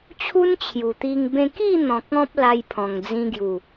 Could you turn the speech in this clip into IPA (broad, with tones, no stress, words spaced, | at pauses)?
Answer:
t͡ɕʰu˦nt͡ɕʰju˨˩t̪i˧ŋ bẽ˧ki˥˧n̪ɔ̃˨k̚ ɔ̃˦p̚la˧jpʰɔ̃˨˩ŋ d͡zĩ˧ɡju˨˩